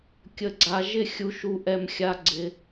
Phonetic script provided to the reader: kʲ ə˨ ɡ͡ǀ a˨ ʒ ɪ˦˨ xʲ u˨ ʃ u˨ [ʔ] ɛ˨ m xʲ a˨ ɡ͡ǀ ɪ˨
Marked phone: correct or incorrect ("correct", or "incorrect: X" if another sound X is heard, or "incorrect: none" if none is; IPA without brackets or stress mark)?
correct